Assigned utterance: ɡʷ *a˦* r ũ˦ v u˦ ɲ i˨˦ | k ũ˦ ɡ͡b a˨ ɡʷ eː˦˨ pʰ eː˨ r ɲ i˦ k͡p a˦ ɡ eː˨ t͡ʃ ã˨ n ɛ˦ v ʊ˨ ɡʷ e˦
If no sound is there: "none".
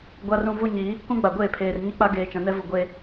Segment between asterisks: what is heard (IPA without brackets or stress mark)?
a˦